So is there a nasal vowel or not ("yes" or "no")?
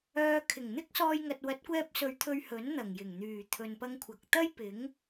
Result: no